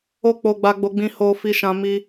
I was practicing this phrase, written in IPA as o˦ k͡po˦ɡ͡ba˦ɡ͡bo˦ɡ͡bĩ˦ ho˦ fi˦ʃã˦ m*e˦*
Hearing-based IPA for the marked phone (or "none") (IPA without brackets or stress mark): i˦